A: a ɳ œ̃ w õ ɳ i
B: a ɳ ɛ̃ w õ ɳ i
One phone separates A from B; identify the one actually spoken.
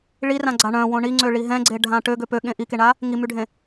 A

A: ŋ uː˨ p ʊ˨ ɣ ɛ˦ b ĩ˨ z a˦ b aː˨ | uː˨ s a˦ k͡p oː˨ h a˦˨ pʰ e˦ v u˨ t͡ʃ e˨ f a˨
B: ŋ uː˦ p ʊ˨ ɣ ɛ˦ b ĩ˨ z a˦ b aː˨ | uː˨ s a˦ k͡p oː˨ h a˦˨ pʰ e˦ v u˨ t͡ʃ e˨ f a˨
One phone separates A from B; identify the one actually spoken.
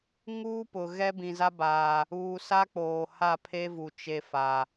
B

